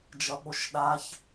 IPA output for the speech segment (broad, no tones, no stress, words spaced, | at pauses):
d͡ʒʌɓoʃɗaç